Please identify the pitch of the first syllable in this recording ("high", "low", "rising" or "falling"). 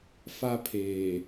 high